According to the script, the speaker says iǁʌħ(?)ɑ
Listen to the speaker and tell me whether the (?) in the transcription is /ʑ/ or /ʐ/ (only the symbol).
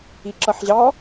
ʑ